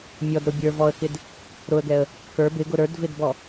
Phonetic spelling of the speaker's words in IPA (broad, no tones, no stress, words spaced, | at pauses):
mʲɔdɾʊ bʲə˞vɔə̯kɪd | ɾʊə̯ɡɛə̯ | kə˞ bɪɡʊ ɾə˞dvɪdbɔ